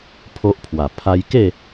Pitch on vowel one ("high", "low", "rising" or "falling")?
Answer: high